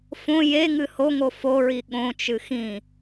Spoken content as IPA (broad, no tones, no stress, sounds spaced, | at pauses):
f õ j e ŋ ɨ h o ŋ o f o ɹ i ɠ õ t͡ʃ ɨ x ĩ